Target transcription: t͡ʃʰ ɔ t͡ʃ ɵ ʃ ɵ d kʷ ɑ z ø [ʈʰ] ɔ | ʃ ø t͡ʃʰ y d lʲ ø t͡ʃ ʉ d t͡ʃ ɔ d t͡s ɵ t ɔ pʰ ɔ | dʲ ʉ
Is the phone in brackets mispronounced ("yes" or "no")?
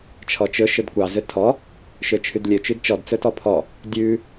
yes